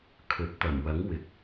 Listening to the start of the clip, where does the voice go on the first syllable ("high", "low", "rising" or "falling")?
rising